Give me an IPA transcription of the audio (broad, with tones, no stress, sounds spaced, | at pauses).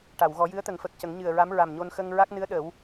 ʈ a˨˩˨ w ɣ ɔ˨˩˦ j ɨ˧˥ ə̯ t̪ ə˨˩˦ ŋ f ə˨˩ k̚ c ə˨˩˦ ŋ ɲ ɨ˨˩ ə̯ ɹ a˧˥ m ɹ a˨˩ m ɲ o˧ n x ə˧ ŋ ɹ a˦˥ k̚ n ɨ˧˥ ə̯ ɗ ə˨˩˦ w